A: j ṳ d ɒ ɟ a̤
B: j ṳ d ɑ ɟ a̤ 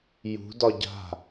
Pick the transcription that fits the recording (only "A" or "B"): A